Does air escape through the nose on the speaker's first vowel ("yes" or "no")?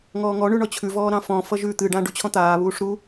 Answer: no